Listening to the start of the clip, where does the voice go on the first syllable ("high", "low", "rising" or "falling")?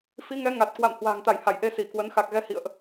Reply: rising